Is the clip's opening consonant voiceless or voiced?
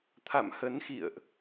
voiceless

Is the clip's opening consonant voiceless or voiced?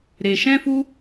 voiced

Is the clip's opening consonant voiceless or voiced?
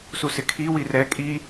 voiceless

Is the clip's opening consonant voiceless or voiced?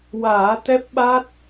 voiced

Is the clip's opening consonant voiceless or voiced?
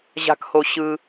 voiced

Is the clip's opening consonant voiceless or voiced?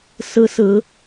voiceless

